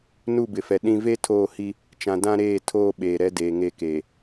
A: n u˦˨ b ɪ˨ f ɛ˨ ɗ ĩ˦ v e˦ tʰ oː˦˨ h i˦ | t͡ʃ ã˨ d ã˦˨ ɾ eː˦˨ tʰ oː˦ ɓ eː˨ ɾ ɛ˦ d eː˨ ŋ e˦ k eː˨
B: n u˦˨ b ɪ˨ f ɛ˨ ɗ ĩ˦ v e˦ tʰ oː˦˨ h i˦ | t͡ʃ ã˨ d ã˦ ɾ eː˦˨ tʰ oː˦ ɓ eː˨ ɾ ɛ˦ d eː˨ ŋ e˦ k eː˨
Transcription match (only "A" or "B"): B